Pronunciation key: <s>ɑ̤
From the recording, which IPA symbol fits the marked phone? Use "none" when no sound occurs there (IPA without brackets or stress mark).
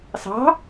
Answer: s